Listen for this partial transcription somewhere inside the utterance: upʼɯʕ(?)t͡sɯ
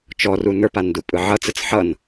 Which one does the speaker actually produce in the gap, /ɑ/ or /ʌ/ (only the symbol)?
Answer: ʌ